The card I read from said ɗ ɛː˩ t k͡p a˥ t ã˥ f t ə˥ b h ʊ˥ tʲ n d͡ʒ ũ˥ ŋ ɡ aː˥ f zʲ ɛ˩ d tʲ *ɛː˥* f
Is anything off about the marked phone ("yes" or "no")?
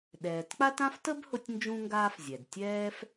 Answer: no